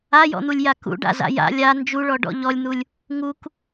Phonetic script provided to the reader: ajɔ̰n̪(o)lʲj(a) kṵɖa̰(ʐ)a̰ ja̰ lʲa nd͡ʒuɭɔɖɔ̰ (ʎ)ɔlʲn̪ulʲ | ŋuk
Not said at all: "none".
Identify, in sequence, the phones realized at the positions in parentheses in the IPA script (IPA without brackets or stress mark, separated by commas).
u, a, z, ʎ